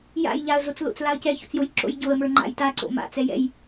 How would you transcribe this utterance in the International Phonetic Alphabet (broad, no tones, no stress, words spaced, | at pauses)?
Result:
ja̰j ʎaə̯zot͡slo̰t͡s laə̯cɛço̰t͡sjoj ǁo̰jɟoə̯mə˞ ŋ͡ǃa̰jta ǀo̰ma̰t͡sɛ jɛ̰j